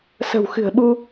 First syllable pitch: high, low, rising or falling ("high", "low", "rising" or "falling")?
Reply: low